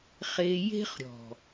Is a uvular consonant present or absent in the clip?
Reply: present